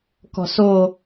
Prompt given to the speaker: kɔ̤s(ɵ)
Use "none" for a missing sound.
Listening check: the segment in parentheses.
o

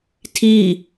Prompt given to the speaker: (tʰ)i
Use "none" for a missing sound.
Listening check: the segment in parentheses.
tʰ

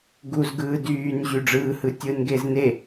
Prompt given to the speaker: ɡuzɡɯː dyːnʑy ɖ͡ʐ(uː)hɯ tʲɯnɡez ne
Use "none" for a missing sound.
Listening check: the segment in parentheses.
ɯː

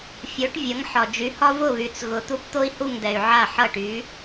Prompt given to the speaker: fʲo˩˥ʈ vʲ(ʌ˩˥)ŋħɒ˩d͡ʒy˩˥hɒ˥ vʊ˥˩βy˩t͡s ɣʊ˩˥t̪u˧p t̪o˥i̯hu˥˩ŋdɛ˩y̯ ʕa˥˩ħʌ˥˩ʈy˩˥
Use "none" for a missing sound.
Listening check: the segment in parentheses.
ʌ˩˥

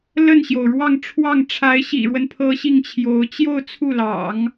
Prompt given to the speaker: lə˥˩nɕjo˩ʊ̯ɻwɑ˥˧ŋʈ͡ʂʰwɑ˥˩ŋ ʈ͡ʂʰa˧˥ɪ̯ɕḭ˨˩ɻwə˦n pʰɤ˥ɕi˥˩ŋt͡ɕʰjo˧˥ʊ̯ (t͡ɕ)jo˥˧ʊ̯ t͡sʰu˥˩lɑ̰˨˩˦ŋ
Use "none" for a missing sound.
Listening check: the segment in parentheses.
t͡ɕ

